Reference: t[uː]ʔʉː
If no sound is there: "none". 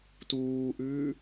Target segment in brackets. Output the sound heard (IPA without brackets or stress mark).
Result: uː